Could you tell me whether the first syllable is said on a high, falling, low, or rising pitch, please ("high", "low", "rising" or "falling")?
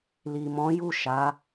low